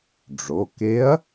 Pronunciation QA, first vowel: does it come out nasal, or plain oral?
oral